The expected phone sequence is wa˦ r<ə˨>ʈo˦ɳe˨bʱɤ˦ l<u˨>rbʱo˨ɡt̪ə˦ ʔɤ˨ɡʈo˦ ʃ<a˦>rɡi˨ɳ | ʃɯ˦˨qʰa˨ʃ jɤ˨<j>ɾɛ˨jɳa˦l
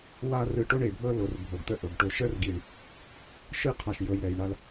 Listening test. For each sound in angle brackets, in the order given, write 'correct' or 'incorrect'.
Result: incorrect, incorrect, incorrect, correct

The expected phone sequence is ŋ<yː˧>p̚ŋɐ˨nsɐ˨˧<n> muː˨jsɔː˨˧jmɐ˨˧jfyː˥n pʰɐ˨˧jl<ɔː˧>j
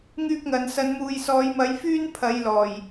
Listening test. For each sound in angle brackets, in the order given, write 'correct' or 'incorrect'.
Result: correct, correct, incorrect

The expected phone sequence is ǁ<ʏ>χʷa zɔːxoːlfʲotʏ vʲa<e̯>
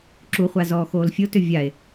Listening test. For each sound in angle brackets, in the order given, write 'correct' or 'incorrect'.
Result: incorrect, correct

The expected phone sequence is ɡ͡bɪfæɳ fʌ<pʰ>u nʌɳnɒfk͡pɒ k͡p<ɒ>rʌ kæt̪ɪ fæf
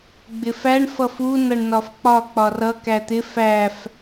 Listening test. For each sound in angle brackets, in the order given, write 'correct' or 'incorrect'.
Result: incorrect, correct

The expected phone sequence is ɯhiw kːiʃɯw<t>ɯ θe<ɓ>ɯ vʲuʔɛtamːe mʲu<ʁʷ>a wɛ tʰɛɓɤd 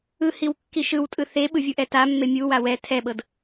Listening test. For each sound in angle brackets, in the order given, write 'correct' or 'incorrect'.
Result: incorrect, correct, incorrect

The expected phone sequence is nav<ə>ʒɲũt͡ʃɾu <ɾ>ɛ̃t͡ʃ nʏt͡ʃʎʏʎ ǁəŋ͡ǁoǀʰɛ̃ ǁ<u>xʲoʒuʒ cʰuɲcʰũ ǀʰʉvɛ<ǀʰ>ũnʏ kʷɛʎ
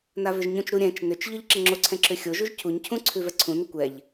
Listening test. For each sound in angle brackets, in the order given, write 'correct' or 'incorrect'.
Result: incorrect, incorrect, incorrect, correct

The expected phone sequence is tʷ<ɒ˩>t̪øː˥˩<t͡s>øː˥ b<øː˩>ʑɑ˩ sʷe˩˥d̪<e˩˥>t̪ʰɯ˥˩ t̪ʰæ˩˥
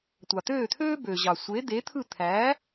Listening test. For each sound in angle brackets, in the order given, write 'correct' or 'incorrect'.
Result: incorrect, incorrect, incorrect, correct

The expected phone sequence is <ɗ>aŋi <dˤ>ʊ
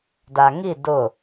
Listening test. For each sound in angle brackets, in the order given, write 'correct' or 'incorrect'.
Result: incorrect, incorrect

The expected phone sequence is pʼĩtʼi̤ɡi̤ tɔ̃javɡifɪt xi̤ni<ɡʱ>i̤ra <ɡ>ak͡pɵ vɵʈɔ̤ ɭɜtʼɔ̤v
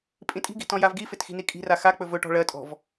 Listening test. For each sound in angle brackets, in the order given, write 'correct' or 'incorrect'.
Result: incorrect, incorrect

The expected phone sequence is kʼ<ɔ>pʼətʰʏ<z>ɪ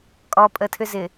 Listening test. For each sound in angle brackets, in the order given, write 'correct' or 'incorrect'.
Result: correct, correct

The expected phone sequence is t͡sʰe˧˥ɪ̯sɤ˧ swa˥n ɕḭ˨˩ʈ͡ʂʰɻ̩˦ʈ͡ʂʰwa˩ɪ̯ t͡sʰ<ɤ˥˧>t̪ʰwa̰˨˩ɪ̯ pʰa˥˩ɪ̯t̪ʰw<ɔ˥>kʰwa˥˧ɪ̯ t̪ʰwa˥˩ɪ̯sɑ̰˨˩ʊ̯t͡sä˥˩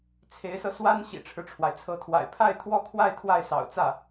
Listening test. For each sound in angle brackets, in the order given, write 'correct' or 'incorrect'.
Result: incorrect, correct

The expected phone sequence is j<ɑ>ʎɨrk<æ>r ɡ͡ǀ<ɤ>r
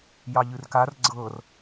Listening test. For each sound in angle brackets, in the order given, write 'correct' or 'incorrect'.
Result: correct, incorrect, correct

